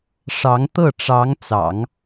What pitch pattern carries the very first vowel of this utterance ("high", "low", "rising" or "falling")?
rising